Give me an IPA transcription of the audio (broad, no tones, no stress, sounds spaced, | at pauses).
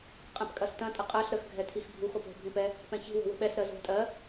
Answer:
qʼ ɛ̃ p kʼ ɐ s t ɐ̃ tʼ ə qʼ ɜ ɬ ɾ ə x ɡʱ ɛ t̪ʰ i x bʱ u x o p o̤ bʱ ĩ p ɛ | p ɛ̃ ç i̤ w o̤ w ə̤ ɓ ɛ s ɾ ɜ z o̤ tʼ ɜ